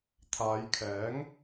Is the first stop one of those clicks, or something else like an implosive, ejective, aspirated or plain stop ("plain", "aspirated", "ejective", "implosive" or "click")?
aspirated